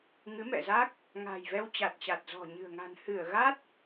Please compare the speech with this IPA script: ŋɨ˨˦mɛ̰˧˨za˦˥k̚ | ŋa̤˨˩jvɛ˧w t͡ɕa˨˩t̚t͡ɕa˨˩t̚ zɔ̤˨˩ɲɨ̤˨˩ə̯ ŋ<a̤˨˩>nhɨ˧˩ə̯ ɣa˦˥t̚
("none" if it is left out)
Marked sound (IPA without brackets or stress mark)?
a̤˨˩